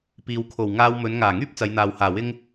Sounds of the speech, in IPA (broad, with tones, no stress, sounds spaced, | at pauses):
p iː˨ w kʰ o˨˩ w ŋ aː˧ w m ɵ˨˧ n ŋ aː˨˩ ŋ yː˥ p̚ t͡s ɐ˨˧ j n̪ aː˨ w h aː˨˩ w ɪ˥ ŋ